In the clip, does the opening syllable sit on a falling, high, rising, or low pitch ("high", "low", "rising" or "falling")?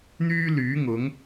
high